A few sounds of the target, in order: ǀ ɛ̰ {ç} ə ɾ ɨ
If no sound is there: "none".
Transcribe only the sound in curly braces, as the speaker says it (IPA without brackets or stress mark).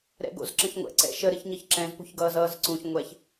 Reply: ʃ